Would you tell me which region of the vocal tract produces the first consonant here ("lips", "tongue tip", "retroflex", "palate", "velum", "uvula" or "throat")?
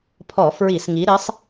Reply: lips